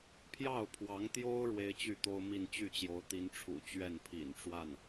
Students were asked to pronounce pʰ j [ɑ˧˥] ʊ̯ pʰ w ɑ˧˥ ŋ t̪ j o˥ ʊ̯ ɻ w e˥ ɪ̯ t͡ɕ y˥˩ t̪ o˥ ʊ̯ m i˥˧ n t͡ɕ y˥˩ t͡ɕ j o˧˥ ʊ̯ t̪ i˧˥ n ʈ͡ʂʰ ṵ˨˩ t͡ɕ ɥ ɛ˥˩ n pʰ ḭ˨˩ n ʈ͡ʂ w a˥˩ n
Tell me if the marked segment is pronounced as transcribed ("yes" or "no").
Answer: no